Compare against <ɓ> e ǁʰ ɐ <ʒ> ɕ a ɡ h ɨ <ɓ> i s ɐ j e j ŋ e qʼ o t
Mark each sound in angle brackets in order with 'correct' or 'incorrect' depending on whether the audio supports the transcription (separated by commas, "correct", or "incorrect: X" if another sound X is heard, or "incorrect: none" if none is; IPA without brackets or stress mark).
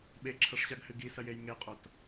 correct, incorrect: ʂ, incorrect: ɡ